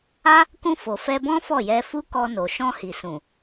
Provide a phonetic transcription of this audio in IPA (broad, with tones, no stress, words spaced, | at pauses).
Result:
a˦ | kũ˧ fo˨fɛ˧bɔ̃˦ fɔ˦˨jɛ˧fu˦ kɔ˧no˨ ʃɔ̃˧hi˨sũ˨